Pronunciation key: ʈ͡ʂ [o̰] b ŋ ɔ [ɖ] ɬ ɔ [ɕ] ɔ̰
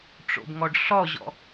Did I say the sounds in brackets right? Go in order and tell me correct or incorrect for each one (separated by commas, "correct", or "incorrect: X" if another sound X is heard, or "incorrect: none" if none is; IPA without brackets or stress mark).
correct, correct, incorrect: ʑ